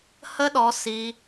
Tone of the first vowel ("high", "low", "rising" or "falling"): high